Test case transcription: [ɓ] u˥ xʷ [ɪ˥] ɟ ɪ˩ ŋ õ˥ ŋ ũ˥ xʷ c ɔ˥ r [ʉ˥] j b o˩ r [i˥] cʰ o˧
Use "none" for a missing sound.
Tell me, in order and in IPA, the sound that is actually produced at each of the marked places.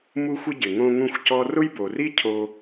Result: m, ɪ˥, ʊ˥, i˥

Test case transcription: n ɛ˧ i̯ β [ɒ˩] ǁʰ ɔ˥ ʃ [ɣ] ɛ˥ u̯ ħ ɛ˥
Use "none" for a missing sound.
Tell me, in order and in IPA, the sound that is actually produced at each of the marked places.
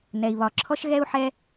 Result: ɒ˧, ɣ

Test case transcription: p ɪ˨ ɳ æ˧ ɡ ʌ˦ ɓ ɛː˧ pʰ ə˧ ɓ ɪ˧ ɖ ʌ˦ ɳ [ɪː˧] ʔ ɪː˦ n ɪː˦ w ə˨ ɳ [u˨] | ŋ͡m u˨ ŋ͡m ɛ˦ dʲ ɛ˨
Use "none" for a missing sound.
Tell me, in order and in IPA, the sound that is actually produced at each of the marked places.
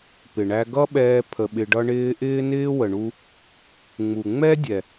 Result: ɪː˧, u˧

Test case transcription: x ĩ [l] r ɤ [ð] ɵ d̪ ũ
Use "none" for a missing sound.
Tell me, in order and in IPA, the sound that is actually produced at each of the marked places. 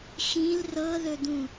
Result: l, ð

